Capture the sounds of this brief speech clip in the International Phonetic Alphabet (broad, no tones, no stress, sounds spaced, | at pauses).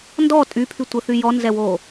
n d ɔ tʼ y pʰ y tʷ ə θ y j ɔ n z ɛ w oː